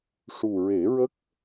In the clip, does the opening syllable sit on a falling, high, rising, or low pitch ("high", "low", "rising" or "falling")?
low